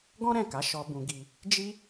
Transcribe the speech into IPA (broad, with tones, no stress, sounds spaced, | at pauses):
ɡ ɔ̃˦ ɾ ɛ̃˦˨ k a˨˦ ʃ ɔ˧ b ũ˧ ɡ i˧ | d͡ʒ i˦